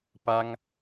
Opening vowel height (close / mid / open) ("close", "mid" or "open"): open